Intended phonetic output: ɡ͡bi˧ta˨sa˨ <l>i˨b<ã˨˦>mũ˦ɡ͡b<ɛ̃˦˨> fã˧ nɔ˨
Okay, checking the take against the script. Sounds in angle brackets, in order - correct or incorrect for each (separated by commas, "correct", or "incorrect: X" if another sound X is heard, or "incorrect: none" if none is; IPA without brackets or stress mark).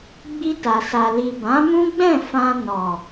correct, correct, correct